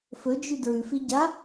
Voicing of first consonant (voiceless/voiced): voiceless